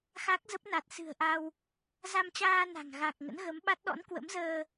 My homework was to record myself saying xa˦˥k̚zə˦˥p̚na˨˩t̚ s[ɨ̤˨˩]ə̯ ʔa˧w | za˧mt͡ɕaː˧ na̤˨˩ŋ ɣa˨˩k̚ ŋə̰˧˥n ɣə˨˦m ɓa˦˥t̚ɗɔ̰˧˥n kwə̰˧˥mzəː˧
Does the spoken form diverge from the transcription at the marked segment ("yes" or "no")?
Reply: no